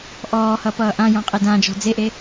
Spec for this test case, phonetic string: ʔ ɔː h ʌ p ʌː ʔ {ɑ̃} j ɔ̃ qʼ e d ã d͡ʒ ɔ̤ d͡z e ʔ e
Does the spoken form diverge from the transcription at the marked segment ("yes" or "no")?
yes